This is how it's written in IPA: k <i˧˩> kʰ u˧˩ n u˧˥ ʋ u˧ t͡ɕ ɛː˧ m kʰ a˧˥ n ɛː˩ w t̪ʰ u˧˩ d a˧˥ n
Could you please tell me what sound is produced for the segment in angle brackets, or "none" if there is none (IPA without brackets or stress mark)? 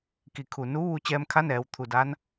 i˧˩